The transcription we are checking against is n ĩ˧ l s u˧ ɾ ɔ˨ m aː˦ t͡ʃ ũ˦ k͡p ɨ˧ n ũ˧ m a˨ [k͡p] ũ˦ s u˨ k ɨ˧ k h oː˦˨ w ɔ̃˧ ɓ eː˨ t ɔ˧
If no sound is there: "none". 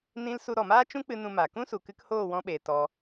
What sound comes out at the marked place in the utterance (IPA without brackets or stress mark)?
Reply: k